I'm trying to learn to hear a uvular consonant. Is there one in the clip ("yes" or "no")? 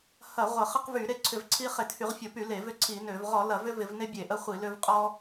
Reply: yes